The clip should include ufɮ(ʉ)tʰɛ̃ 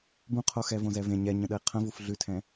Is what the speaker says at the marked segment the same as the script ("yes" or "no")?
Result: yes